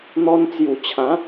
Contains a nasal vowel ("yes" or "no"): yes